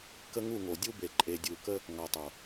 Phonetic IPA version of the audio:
kə˦ŋu˦˨ŋo˨ dʲu˦be˨ ǃʼe˨dʲu˨kə˦ | ŋɒ˨tˤo˨

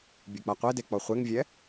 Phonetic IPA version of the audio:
bʲɯk͡paqʷede k͡pɔχʷeŋvʲɛ

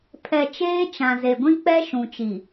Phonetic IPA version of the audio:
pʰɛ˨ t͡ʃeː˦t͡ʃã˨ ze˨ɡʷĩ˦k͡pɛ˦ ʃũ˨t͡ʃi˨

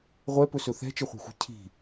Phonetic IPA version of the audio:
ʁʷɛpɵsɵ θɛ̤t͡ʃəχʷɛ̤xʷɛ̤ cʰi̤

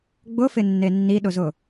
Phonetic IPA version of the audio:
ɡ͡bʊfɪnːe nːiɗʊzʊ

